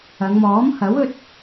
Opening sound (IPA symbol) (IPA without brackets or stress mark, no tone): ɐ